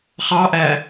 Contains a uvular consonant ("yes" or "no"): yes